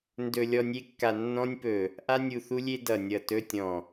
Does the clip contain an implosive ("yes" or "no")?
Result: no